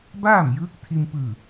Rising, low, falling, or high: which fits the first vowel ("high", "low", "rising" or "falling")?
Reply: falling